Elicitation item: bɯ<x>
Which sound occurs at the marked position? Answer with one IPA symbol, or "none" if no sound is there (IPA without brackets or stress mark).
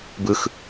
x